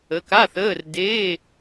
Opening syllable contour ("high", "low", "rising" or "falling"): rising